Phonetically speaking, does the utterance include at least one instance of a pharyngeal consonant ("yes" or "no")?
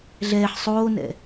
yes